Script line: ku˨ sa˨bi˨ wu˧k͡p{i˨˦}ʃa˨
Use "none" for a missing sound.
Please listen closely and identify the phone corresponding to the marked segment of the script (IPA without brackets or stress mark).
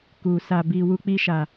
i˧